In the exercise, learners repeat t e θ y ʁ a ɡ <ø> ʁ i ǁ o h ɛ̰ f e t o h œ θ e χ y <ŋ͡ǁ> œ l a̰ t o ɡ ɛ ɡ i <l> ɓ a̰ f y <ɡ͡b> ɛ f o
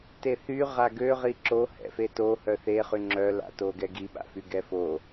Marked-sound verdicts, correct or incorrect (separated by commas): correct, correct, incorrect, incorrect